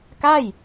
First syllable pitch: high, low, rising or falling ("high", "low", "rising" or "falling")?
falling